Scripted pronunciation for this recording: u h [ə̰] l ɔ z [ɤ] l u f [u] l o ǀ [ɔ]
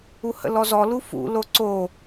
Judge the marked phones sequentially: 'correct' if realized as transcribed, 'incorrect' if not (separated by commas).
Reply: correct, incorrect, incorrect, incorrect